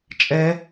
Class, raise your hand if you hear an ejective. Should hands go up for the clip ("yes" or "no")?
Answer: yes